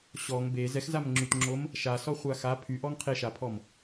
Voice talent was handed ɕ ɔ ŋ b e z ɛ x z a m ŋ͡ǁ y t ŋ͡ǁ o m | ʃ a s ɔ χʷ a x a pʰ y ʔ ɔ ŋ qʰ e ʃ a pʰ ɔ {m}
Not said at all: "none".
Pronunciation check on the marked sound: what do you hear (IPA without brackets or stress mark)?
m